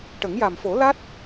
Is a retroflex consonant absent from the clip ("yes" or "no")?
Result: no